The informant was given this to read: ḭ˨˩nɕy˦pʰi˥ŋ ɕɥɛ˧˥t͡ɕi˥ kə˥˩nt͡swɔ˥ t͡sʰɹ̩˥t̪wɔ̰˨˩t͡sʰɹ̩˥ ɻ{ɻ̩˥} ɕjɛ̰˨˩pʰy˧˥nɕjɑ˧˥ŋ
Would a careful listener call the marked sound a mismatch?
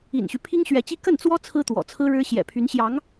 no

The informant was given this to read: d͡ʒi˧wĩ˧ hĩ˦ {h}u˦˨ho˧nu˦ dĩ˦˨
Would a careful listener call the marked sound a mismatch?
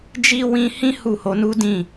no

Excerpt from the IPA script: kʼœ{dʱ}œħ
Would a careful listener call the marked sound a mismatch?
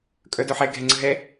yes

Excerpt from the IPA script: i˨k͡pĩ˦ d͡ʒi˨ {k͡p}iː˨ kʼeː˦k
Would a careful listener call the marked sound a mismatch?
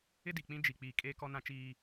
no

